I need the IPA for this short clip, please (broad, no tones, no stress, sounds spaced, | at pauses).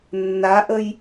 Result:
nː a ʔ ə j